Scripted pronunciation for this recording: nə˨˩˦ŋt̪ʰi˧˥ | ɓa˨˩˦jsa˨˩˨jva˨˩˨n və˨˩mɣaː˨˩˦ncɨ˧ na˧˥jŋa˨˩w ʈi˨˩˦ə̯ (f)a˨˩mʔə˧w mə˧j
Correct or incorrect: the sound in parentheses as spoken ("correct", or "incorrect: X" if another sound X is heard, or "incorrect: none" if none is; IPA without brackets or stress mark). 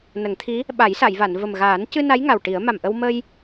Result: incorrect: m